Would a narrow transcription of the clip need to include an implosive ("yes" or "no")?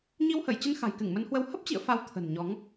no